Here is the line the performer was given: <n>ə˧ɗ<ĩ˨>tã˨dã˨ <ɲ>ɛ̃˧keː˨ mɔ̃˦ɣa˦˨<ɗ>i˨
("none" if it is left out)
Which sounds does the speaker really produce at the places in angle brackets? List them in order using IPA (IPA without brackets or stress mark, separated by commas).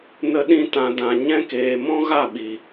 n, ĩ˧, ɲ, ɓ